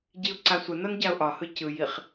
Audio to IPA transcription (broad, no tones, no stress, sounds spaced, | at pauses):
ɟ i ʊ̯ ǀ a sʷ ə n ɒ n ɟ a ʊ̯ ʔ ɒ h ɯ c ɯ j i χ